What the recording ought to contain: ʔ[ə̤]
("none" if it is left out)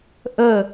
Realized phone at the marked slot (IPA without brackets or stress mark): ə